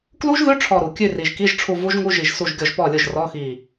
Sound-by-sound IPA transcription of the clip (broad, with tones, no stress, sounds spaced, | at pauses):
k l u˦˥ ʒ ð ʉ˧˥˧ ʈ͡ʂʰ ɔ˧˩ ɾ u˩ kʲ ʉ˥˩ r i˩ ʒ k i˧˥˧ ʒ ʈ͡ʂʰ u˧˩ v u˦˥ ʒ ŋ u˧˥˧ ʒ i˧˩ ʒ s u˥˩ ʒ ɡʲ ɔ˥˩ ʒ p ɔ˥˩ lʲ ʊ˥˩ ʒ r ɔ˧˥˧ x i˧˩